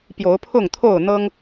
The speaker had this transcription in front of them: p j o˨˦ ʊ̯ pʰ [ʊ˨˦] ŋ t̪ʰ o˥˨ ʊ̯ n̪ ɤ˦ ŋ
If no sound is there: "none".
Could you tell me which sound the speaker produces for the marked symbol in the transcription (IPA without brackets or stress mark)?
ʊ˥˨